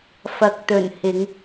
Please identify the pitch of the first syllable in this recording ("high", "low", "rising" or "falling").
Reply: low